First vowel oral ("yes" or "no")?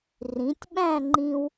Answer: no